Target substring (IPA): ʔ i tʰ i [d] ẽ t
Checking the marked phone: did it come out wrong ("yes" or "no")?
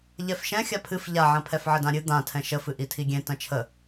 yes